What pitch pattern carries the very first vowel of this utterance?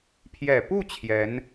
low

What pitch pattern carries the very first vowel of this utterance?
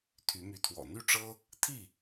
rising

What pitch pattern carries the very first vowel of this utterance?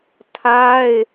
high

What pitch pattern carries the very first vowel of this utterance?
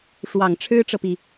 low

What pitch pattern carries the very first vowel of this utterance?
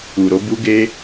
low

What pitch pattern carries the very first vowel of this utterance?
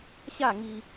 falling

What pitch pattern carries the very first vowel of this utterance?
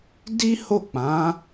high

